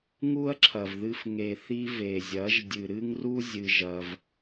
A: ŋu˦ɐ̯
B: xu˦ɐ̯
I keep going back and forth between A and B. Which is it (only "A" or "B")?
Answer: A